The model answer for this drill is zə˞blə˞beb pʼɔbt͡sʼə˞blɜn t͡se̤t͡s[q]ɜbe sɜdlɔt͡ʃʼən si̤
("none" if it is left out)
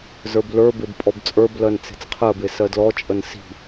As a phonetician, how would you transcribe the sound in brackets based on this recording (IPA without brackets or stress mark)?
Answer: qʰ